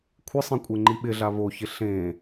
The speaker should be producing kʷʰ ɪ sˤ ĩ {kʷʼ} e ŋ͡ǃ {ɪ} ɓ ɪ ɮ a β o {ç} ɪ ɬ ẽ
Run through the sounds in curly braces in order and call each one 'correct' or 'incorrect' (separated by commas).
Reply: correct, incorrect, correct